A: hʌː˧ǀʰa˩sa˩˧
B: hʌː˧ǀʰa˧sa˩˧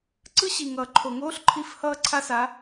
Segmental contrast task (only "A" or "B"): B